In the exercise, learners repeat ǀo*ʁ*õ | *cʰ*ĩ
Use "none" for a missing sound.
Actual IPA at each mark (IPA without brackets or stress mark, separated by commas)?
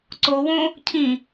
w, cʰ